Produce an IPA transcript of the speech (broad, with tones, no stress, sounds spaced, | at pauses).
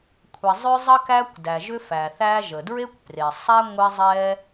kʷʰ ɛ˩ zˤ ʏ˥ zˤ ɐ˥ k æ˥ kʷ d æ˩ ʒ ʏ˥ f æ˩ θ æ˥ ʒ ə˩ d ɹ e˥ kʷ p r e˩ sˤ æ˥ ŋʷ e˥ zˤ ɛ˥